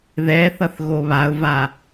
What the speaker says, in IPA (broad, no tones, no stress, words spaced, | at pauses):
ðɛθʌθ ɣoβaʊ̯va